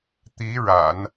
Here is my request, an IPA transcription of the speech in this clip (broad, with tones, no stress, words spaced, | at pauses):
t̪i˧˥ ɻa̰˨˩˦n